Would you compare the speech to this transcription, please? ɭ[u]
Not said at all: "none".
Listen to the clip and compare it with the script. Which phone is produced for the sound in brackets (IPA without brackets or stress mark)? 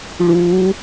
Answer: u